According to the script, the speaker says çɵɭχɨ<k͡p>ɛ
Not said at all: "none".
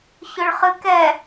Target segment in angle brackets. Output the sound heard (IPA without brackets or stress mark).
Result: k